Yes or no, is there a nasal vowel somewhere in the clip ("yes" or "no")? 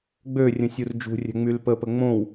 yes